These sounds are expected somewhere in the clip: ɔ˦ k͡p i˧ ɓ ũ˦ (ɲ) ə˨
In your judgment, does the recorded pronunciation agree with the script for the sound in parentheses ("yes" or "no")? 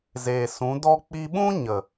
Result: yes